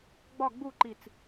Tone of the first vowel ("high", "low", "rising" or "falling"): falling